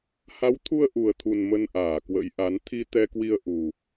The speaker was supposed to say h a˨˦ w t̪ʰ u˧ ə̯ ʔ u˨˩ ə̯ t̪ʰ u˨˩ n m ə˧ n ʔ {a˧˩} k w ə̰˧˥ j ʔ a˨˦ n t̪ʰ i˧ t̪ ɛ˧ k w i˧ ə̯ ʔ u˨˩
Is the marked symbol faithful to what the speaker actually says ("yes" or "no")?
no